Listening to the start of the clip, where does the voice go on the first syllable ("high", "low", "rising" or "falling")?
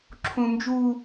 high